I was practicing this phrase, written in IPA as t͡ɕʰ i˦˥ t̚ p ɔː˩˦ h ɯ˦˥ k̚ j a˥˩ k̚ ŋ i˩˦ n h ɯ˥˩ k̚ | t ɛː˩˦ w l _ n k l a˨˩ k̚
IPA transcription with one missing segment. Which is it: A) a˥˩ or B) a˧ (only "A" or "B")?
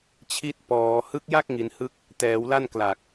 A